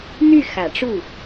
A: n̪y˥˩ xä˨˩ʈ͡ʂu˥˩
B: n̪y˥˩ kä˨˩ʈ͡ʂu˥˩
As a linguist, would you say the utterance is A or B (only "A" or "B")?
A